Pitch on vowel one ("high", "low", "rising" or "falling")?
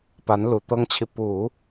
rising